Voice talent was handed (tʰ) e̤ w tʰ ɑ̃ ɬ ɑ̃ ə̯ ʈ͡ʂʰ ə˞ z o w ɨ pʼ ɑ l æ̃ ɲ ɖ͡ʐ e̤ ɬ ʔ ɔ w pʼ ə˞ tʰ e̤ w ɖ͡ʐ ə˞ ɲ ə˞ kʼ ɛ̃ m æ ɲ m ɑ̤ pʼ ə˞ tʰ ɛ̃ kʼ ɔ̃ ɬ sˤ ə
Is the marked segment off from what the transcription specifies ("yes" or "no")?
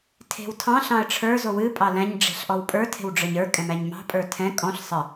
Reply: no